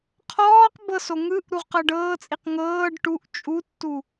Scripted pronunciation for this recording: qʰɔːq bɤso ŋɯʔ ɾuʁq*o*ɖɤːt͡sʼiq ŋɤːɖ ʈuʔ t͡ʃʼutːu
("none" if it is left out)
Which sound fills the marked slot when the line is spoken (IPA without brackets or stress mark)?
ɤ